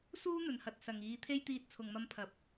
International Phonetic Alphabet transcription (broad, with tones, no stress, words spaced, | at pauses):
suː˥n̪ɵ˨nhɐ˨t̚ sɐ˨ŋiː˨˧t̪ʰe˥j t̪iː˧t̚t͡sʰʊ˨ŋmɐ˧m pʰɐ˨˥p̚